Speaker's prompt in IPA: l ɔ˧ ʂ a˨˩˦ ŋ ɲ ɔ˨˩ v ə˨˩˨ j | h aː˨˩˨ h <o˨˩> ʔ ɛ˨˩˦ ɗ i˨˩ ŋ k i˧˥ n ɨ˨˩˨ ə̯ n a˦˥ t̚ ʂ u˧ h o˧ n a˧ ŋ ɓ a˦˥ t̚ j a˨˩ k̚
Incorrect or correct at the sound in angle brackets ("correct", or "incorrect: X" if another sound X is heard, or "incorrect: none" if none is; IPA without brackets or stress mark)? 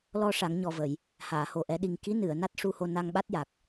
correct